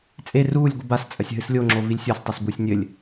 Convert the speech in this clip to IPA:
t͡sʼ e r uː lʲ ɡʷ ɨ b a s t͡sʼ ɐ sʲ ɦ ɨ s lʲ o ŋ͡ǁ o v i lʲ sʲ ɔ s tˤ ɘ s b u sʲ nʲ ɘ lʲ

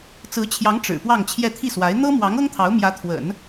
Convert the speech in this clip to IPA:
t͡s ɹ̩˧˥ t͡ɕʰ j ɑ˧˥ ŋ ʈ͡ʂ ɻ̩˨˩ p w ɑ˥˧ ŋ t͡ɕʰ j ɛ˥˧ t̪ʰ i˥˩ s w a˧˥ ɪ̯ n̪ ɤ˥ m w ɑ˧˥ ŋ ɤ˥ ŋ t̪ʰ ɑ˧˥ ʊ̯ m j ä˧˥ t̪ʰ w ə̰˨˩˦ n

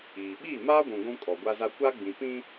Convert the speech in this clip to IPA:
iː˨ ɓ iː˦˨ m aː˦ ɡʷ ũ˨ ɡʷ ũ˦ kʼ ɔ˨ ɡʷ a˦ z a˦ kʷ a˦ ɡ͡b ĩ˨ p ĩ˦

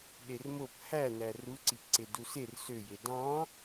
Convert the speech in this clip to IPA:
ɗ e r m o p h æ n æ r u ǀ i p ǀ e d u s e r s ø j e d ɑ̃

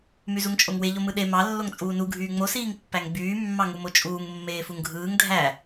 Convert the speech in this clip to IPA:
m y z u ŋ t͡ʃʼ o ŋ w e ʎ o m ɯ ɗ e m ɑ lː o ŋ t͡sʼ uː n u ɡʱ yː ŋ͡m o s iː ŋ pː æ ŋ ɡ͡b yː mː ɑ ŋ u m o t͡ʃʼ uː ŋ mː eː f u ŋ ɡʱ ɯː ŋ dʱ æ

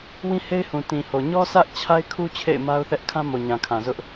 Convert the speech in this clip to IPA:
w ĩ˦ h e˦ ɪ̯ h ũ˨ t ĩ˨ h o˨ ɲ ɔ˦ s ä˦ ʔ t͡ɕʰ a˦ ɪ̯ kʰ u˦ t͡ɕʰ ḛ˦˨ ɪ̯ m a˦ ʊ̯ θ ɛ˦ ʔ kʰ ã˦ m o˨ ɲ ã˨ kʰ ã˨ z ʊ˦ ʔ

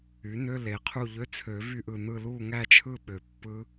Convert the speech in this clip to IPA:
y˩˥ n ø˧˥˧ l e˨˩ qʰ u˦˨ ʎ ø˧˥˧ t͡sʰ ø˨˩˦ v y˦˨ ʔ ɯ˨˩ n̪ ɯ˦˨ l u˦˨ ŋ æ˦˨ t͡ʃʰ ɯ˦˨ ɓ ø˨˩ pː ɯ˦˥

